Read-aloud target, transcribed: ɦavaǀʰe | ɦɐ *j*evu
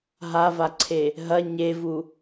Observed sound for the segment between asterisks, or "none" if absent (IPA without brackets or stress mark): ɲ